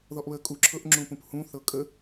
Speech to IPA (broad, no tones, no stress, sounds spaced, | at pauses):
ð ɔ ʔ β ə kʼ u ǁʰ ɤ ʔ ŋ͡ǁ ũ p ũ p h ũ θ ɤ kʼ ə